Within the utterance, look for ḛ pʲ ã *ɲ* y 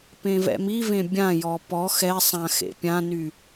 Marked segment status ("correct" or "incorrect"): incorrect